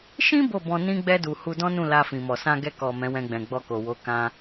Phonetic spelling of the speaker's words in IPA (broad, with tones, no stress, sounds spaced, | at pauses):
ʃ ĩ˦ b o˦˨ b ɔ̃˧ n ĩ˧ ɡ͡b ɛ˧ d u˨ h u˧ d ɔ̃˦ n ũ˦˨ l a˧ f ĩ˨ m ɔ˨ s ã˧ ɡ ɛ˧ k ɔ˨ m ɛ̃˨˦ w ɛ̃˧ ɡ͡b ɛ̃˨ ɡ͡b ɔ˧ k o˨ w o˨˦ k ã˧